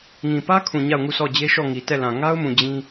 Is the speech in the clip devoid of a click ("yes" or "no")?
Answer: yes